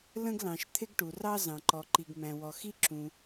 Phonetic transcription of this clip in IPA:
l ə̃˥ ɡ l ɑ̃˩ ʃ t̪ʰ ɪ˥ ɡ ʈ u˩ r ɑ˥ z ɑ̃˩ ǃ ɔ˩ ǃ i˩ ɡ m æ̃˩ w ɔ˩ x i˥ ǁ ũ˩

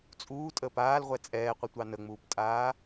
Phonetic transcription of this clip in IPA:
t͡sʼ uː tʼ əː p aː l ʁʷ ɛ t͡sʼ ɛː qʷ ə tʷ ɑ n ə ŋ͡m uː p tʼ aː

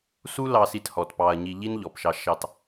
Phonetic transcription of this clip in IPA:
s u˦ l ɑ˧ s i˧ t h ɔ˨ t p ɑ˧ ɐ̯ ɲ i˧ ʎ i˦ n ʎ ɔ˨ p ʃ ɑ˧ ʃ ɑ˧ t

